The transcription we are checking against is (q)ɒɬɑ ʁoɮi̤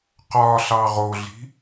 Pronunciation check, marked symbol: correct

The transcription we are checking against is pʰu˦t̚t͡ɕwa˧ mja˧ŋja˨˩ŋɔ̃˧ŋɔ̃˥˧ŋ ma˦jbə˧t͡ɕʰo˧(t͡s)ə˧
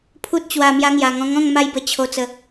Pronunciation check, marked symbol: correct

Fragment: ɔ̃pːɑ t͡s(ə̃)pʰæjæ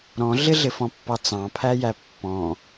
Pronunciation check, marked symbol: incorrect: ɑ̃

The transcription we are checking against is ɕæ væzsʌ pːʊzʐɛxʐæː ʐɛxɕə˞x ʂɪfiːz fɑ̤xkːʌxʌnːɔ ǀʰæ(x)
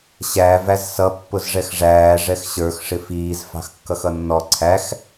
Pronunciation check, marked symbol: correct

